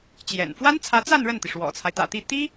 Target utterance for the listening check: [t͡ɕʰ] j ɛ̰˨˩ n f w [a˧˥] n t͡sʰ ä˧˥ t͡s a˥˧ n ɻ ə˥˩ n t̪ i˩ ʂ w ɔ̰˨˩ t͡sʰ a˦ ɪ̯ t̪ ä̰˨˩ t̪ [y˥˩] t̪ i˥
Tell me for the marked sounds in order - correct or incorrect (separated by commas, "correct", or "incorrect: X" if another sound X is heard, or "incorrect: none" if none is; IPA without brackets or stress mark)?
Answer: incorrect: t͡ɕ, incorrect: a˥, incorrect: i˥˩